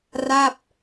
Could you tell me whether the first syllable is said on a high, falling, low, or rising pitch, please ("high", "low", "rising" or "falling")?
falling